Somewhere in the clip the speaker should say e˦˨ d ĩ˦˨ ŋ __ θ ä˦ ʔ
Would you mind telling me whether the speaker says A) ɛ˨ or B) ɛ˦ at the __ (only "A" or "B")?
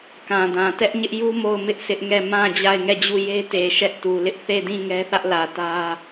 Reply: B